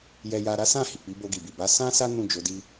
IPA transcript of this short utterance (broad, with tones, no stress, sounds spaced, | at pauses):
j ɛ˦ j a˦ ɾ a˦ s ã˦˨ h i˨ k͡p i˨˦ b o˧ ɡ i˨ b i˨ b a˨˦ s ã˦ s a˦ n ũ˦˨ d͡ʒ o˨˦ d i˦